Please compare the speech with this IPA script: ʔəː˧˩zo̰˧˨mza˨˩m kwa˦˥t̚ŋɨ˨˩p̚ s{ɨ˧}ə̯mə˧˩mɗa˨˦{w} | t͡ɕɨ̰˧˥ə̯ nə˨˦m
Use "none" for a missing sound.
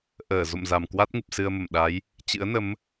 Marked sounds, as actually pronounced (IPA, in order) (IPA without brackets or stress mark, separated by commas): ɨ˧, j